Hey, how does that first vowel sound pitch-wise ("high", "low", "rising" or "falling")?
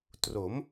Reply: rising